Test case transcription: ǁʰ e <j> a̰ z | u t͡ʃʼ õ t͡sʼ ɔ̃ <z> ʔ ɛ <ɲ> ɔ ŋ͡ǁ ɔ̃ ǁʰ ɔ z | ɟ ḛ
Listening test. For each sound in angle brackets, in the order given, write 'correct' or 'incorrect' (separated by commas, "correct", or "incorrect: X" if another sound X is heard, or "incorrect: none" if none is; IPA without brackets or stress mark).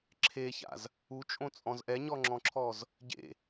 incorrect: ç, correct, correct